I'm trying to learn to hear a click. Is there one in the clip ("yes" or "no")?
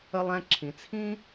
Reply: yes